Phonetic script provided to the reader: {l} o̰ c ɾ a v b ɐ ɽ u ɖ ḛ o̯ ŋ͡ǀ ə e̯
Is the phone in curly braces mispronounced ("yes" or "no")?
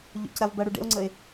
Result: yes